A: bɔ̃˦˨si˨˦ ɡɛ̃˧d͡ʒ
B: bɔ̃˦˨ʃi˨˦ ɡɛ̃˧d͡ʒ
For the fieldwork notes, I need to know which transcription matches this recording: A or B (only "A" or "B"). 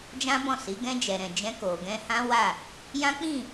A